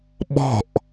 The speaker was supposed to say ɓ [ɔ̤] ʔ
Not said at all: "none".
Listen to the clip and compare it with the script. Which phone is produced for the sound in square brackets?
ɔ̤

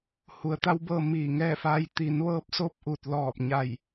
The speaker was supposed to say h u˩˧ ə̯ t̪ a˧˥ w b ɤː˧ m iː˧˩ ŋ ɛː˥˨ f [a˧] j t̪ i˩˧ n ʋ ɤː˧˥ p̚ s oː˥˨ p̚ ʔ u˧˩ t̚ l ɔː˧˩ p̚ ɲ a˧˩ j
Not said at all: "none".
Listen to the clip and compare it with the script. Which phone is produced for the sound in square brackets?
a˧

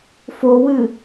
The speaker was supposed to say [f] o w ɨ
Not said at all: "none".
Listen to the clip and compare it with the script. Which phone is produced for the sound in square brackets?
f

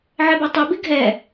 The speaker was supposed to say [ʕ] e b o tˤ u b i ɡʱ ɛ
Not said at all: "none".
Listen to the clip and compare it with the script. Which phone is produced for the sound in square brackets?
ʕ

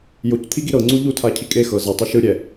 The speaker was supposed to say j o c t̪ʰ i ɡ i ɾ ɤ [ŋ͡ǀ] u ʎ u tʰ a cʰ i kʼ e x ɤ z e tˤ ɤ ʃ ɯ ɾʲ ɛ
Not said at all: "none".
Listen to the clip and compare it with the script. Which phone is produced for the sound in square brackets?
ŋ͡ǀ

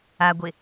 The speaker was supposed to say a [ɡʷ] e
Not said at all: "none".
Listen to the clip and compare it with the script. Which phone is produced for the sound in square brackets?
ɡʷ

